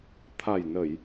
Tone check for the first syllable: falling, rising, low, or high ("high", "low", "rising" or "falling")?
low